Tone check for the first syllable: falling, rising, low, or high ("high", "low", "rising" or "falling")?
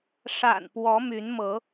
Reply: low